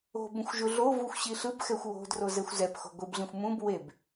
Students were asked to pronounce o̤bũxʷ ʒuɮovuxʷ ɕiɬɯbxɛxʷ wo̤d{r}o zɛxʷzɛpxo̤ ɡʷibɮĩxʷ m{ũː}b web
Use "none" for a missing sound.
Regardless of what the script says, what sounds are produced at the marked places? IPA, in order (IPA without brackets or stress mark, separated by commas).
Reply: r, ũ